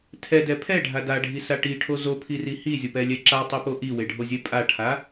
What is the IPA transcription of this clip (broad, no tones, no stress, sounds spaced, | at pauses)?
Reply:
tʰ ɛ d ɛ pʰ ɛ ɖʱ a d a ɖʱ i s a ʈ i ʈʰ o z o pʰ i r i h i zʲ o p ɛ lʲ ɛ ǁ a tˤ e p o ʔ i w e ɖʱ o zʲ ɛ pʼ a ʈʰ a